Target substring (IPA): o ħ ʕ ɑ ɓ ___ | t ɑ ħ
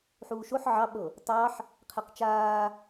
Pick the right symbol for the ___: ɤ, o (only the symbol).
ɤ